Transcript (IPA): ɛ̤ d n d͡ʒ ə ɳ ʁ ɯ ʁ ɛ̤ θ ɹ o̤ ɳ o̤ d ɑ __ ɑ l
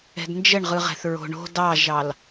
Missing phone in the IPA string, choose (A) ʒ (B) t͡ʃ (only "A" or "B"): A